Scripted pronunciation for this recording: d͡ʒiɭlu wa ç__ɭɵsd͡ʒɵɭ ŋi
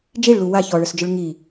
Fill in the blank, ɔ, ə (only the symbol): ɔ